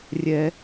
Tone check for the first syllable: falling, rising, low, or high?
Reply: high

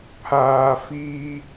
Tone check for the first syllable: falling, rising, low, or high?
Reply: low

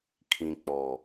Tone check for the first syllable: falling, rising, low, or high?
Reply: low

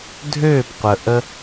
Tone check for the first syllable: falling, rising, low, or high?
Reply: falling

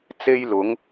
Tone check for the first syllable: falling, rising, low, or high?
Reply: high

